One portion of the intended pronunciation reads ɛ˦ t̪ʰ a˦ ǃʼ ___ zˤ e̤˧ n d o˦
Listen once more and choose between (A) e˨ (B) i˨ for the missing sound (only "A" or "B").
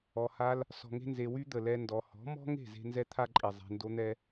B